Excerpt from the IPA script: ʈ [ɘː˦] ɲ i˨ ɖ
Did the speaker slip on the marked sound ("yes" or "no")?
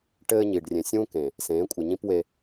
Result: no